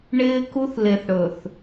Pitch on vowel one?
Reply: high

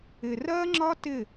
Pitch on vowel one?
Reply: low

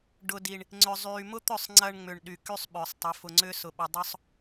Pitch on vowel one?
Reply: low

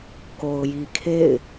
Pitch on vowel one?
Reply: low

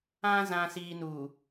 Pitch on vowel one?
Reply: low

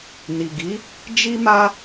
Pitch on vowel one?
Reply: low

